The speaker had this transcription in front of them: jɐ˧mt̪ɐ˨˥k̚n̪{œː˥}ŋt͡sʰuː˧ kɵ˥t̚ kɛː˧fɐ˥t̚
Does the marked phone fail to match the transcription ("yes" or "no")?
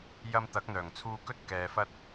yes